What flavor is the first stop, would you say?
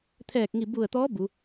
aspirated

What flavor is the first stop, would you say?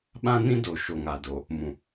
implosive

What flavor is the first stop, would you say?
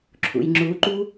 click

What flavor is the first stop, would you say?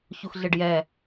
plain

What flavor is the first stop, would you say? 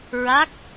plain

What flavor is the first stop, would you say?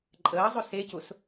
click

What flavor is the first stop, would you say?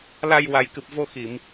plain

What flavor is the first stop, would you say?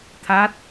aspirated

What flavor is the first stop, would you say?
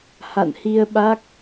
implosive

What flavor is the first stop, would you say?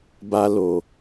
plain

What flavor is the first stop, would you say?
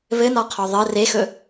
aspirated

